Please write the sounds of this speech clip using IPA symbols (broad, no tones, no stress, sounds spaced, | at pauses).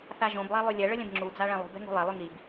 θ a ʒ õ b lˠ a lˠ y lʲ ɛ ɭ ə lʲ ɛ̃ b ŋ͡ǁ u d͡z a ɭ ɛ̃ lˠ ṳ b ɛ̤ ŋ ṳ lˠ ɛ lˠ y ŋ i b